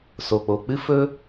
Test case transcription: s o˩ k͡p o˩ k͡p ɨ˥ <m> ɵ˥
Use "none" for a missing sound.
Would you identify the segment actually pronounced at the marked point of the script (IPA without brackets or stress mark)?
f